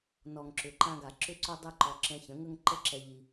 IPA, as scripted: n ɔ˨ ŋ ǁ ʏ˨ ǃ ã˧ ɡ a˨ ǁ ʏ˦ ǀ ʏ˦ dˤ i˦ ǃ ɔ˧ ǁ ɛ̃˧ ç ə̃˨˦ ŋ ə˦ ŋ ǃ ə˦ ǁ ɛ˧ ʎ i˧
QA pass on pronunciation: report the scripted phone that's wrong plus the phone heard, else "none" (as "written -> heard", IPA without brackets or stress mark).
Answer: none